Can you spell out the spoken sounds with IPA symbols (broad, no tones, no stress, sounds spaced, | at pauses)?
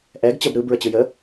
ʔ ɛ ɡ t͡ɕ ə b ɾ ɯ b ɹ ə t͡ɕ ɯ j ə